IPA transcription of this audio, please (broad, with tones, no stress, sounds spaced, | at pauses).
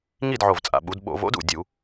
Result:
ŋ i˥˨ d ʕ o˨˩ v t͡sʼ a̰˨˩ ɓ u˩˧ d ɓ o̰˧˩˧ v o̰˦˥ d ṵ˨˩ dʲ u˧˩˧